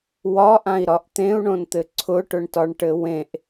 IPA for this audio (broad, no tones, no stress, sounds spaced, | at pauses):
w ɒ ʔ ã i̯ ɾ ɒ ʔ t̪ ẽ u̯ ɳ õ n t̪ ɘ ǀʰ ʊ ʈ ʊ ɳ t ɒ ɳ ʈ ɘ w ẽ ʔ